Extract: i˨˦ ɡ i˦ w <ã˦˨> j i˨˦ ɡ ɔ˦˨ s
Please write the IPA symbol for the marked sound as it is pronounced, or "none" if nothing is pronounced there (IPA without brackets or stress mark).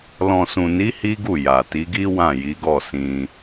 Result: ã˦˨